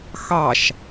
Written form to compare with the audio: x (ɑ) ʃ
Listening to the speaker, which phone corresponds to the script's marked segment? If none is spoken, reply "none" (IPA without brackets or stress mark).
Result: ɑ